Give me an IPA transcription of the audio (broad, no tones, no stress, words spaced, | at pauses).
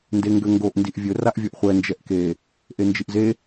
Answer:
ndeŋɡøŋɡoʔ ndiʔvʲɵ raʔvʲoʔχʷɛ nd͡ʒɛʔke | ʔend͡ʒiʔze